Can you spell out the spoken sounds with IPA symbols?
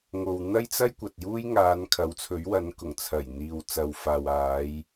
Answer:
ŋ o˨ w n̪ ɐ˥ j t͡s ɐ˥ j kʷ ɐ˨ t̚ j uː˥ j ŋ aː˨˧ n kʰ ɐ˨˥ w t͡sʰ ɵ˨˥ ɥ w ɐ˨˧ n k ʊ˨˩ ŋ t͡sʰ ɐ˨˩ j n̪ iː˨ w t͡s ɐ˨ w f aː˨ w aː˨˧ j

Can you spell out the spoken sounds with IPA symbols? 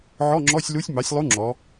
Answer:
ʕ ɔ˧˥˧ ŋ͡ǁ ɔ˧˥˧ sʲ l u˧˥ sʲ m ɑ˩˥ sʲ lˠ u˧˥ ŋ͡ǁ ɔ˩˧

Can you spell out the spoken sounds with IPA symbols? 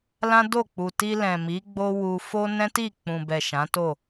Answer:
l ã˦ d o˦˨ k͡p u˨ t i˧ l ɛ̃˨ m i˨˦ ɡ͡b o˦ w u˧ f o˦ n ɛ̃˦ t i˦˨ k͡p ũ˨ b ɛ˨ ʃ ã˨˦ t o˦˨

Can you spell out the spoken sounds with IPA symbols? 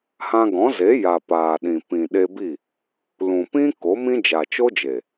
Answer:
h ã˧ ɡ ɔ̃˨˦ z e˨˦ j a˨ p aː˨ ɗ ĩ˨ p ĩ˨ ɗ e˧ b i˦˨ | l ũ˨ p ĩ˦ k o˨˦ m ĩ˦ d͡ʒ a˨ t͡ʃ o˦ d͡ʒ e˨

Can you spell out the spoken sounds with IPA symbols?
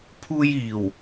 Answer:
pʰ uː˧ j iː˨˩ w

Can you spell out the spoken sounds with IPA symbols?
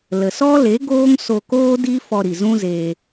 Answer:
l ə˨ s ɔ˦ l e˨˦ ɡ oː˦ ŋ s o˧ k oː˦ d i˦ f ɔ˧ ɾ i˨ z ũ˦ z eː˧

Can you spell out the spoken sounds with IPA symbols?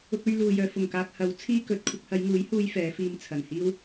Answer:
ʊ˧ k̚ ɵ˧ ɥ l uː˨ j œː˨ f ʊ˨˩ ŋ k aː˨ k̚ h ɐ˨˥ w t͡sʰ iː˥ k ɵ˨˥ t̚ kʷʰ ɪ˧ k̚ h ɐ˨˧ j ŋ uː˨˥ j h uː˧ j f ɛː˨˧ f iː˧ m t͡sʰ ɐ˨˩ n h iː˥ w

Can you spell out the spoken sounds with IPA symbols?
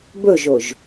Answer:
b ɵ ʒ o ʒ

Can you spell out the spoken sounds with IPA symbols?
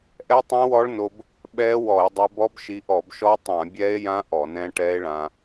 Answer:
ʔ ɛ˦˥ tˤ ɛ̃˦˥ w ɔ˦˥ ɭ n o˧ b | ɓ ɛ˦˥ w ɔ˧˩˧ e̯ dˤ ɛ˧ b ɔ˦˥ b ʃ i˧ ʔ ɔ˧˩˧ b ʃ ɔ˦˥ tˤ ã˧˩˧ bʲ ɛ˦˥ e̯ j ã˦˥ ʔ ɔ˧˩˧ n ɛ̃˦˥ ʈ ɛ˦˥ e̯ ɭ ã˧

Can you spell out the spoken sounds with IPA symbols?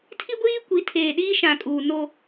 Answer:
tʰ i˦ ɡʷ iː˦ kʷ i˨˦ tʰ eː˨ ɗ iː˦ ʃ ã˨ kʼ uː˨ n o˦

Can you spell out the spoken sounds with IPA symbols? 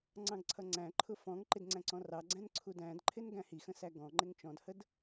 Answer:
ŋ͡ǀ ɑ̃ ɡ ǀʰ ʌ ŋ͡ǀ æ̃ ǃʰ ʊ f ɔ̃ ŋ ǃ ɪ d ŋ͡ǀ æ̃ ǀ ɔ̃ r ɑ ɡ͡ǀ æ̃ n ǀʰ u d æ̃ d ǃʰ ɪ n ɡ æ̃ h i x ə̃ s æ ɡ ɔ̃ ŋ͡ǃ ɪ ŋ t͡ʃ ɔ̃ d h ə d

